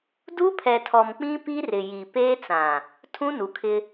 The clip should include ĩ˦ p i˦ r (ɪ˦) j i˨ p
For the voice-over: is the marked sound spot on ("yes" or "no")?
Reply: no